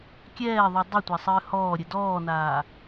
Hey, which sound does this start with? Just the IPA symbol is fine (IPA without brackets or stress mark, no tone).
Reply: kʲ